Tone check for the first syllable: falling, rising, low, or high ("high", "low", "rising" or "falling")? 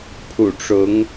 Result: low